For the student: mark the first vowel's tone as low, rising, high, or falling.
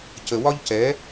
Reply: low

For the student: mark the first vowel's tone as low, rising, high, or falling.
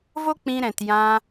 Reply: high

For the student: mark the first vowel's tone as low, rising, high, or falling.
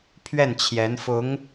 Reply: falling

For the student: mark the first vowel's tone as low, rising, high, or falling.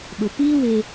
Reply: low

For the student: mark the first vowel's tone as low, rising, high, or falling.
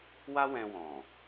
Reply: high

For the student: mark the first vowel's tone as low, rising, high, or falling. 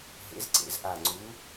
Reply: rising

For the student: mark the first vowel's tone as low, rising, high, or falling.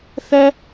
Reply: high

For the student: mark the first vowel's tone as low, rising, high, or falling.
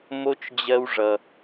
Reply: high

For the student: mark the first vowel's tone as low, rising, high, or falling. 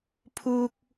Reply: high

